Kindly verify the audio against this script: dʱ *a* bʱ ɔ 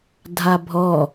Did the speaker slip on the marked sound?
no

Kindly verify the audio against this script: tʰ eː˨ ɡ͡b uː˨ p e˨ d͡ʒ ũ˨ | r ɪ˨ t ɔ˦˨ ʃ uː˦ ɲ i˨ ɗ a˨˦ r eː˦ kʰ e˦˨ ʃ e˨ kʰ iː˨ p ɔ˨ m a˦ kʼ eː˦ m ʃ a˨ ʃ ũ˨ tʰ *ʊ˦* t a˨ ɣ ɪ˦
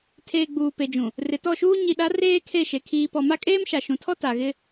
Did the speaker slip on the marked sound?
yes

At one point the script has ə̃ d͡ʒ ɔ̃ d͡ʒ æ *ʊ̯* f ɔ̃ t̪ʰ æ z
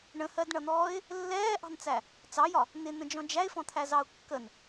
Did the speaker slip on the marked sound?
yes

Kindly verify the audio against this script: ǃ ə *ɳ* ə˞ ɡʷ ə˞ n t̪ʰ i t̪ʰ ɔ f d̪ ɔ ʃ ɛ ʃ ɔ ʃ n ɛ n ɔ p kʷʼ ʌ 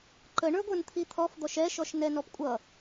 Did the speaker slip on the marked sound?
no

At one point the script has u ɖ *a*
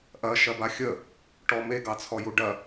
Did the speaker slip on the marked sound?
yes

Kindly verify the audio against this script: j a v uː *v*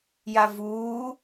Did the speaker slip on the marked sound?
yes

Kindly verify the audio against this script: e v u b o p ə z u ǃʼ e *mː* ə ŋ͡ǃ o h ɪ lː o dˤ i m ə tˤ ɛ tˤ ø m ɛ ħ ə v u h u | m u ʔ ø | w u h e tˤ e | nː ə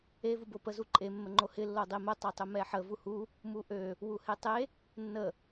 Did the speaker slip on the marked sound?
no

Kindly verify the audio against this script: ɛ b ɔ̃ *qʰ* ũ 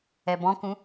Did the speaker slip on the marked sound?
yes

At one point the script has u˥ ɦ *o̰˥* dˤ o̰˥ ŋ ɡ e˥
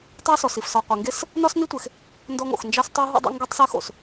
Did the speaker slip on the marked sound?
yes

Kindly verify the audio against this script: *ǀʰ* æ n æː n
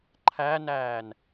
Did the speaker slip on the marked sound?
yes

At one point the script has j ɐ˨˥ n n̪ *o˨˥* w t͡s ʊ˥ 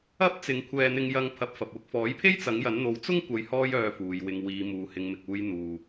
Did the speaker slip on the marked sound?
no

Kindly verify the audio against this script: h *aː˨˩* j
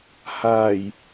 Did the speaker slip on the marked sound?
no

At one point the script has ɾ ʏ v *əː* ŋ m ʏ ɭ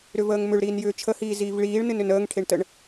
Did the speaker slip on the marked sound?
no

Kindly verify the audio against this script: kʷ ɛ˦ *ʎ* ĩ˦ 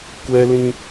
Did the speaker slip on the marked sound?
yes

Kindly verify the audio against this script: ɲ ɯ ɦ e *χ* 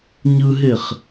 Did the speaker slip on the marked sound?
no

